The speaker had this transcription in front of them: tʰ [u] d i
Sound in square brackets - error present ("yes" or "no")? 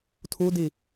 no